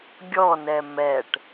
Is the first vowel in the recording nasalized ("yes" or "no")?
no